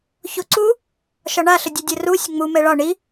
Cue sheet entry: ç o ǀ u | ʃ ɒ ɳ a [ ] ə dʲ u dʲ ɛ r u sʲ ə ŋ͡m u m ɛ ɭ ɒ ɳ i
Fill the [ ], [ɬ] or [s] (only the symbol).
ɬ